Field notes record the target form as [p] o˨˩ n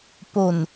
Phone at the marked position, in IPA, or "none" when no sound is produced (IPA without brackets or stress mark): p